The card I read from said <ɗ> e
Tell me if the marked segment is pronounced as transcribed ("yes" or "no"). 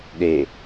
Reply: yes